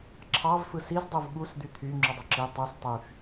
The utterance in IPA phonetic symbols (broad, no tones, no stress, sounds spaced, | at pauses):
ǁʰ ɑ v f ɯ s i z dˤ u v ɠ u s d̪ y t̪ʰ y ŋ͡ǁ y dˤ ø ǁ i tˤ u s tˤ y f